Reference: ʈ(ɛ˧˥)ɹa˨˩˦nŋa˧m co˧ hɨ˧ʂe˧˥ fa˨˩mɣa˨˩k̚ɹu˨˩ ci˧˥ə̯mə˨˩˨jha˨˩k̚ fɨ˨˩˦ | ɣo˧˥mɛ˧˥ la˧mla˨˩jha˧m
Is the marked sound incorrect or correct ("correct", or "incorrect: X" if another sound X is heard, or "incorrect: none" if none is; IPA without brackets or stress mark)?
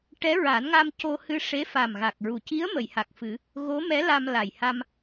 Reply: correct